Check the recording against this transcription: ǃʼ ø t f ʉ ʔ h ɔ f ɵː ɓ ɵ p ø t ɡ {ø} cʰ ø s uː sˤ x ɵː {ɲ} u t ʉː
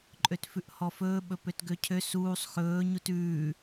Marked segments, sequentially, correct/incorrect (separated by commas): correct, correct